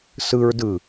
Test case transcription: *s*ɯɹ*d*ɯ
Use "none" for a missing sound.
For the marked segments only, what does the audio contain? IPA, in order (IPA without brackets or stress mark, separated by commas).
s, d